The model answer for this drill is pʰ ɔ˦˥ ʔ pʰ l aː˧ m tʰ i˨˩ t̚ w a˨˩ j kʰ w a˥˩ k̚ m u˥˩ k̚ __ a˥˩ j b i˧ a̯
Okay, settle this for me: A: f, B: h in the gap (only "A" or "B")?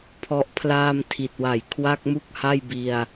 B